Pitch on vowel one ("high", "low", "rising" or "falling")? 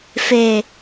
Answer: low